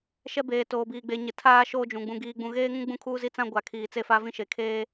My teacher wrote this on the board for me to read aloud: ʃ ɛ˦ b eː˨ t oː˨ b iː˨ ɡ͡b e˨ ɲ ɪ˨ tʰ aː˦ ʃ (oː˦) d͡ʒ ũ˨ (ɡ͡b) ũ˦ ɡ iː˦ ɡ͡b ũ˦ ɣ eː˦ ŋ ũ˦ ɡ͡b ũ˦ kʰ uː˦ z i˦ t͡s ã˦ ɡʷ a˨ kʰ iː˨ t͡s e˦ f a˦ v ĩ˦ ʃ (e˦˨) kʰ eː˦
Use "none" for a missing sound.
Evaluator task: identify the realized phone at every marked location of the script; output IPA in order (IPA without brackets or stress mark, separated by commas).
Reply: oː˦, ɡ͡b, e˨